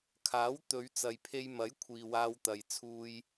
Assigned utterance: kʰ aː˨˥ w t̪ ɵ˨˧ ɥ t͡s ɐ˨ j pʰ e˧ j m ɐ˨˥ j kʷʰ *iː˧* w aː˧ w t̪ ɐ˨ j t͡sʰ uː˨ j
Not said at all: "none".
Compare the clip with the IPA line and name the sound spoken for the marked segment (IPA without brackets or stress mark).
iː˨